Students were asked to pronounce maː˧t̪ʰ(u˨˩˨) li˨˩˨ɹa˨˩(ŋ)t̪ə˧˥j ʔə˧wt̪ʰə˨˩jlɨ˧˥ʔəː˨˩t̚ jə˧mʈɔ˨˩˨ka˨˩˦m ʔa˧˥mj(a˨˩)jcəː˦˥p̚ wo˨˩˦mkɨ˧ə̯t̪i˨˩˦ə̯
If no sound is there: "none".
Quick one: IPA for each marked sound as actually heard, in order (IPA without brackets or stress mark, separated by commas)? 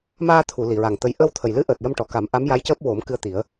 u˨˩˨, ŋ, a˧˥